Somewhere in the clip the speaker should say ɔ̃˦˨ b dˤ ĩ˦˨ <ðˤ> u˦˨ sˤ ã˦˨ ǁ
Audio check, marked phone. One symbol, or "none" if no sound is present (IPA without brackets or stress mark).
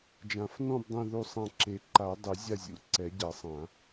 ð